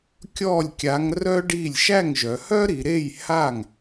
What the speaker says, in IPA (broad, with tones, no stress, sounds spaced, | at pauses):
kʲ ɔ˥˩ lʲ kʲ a˨˥ ŋ r œ˥ ɖ i˥˩ lʲ ʃ æ˥˩ ŋ ʒ œ˩˧ h œ˥ ɾ i˩˧ ɾ e˥˩ j h a˥˩ ŋ